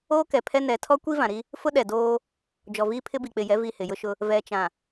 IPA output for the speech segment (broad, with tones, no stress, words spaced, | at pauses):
oː˦kɛ˨pʰɛ˦ nɛ˨˦ tʰɔ˦kʷi˦vã˨ɾi˦ | fʊ˦ɗɛ˨ doː˦ | d͡ʒɔ˨viː˦pʰɪ˦bi˨ k͡pɪ˨jɛ˨˦ vi˦˨hɪ˨jʊ˦ʃʊ˦ | vɛ˨t͡ʃã˨